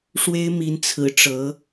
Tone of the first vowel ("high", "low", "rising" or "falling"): high